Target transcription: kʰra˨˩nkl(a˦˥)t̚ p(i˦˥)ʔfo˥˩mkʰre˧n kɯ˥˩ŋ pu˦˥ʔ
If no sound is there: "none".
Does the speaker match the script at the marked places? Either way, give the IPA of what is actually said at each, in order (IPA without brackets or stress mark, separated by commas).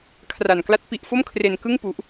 a˦˥, i˦˥